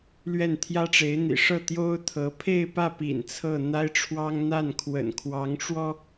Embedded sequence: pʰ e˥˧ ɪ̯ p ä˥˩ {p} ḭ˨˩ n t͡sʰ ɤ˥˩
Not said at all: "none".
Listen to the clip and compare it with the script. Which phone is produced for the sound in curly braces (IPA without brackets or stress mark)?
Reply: p